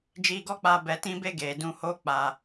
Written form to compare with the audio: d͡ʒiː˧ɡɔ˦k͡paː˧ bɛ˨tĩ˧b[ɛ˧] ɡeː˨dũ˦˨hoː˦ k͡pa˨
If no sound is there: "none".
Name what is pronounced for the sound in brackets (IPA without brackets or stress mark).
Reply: e˧